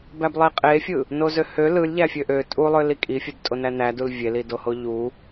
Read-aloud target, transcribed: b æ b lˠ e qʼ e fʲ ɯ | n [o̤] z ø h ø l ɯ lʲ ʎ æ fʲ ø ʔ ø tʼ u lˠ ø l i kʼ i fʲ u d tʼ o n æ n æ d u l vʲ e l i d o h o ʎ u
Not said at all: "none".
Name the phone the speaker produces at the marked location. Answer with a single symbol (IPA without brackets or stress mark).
o